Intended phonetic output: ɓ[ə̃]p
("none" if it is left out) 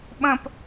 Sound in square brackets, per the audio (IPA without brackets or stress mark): ə̃